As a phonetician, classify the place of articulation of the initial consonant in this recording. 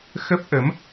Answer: velar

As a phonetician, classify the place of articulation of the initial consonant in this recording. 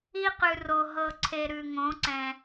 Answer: uvular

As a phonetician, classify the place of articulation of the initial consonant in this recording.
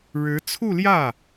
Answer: retroflex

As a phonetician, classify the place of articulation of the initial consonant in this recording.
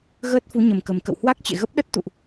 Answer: velar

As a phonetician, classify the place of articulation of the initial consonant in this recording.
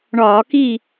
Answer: retroflex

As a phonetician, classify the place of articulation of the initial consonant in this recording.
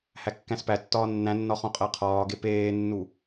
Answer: glottal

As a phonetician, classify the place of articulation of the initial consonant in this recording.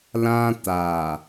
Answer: alveolar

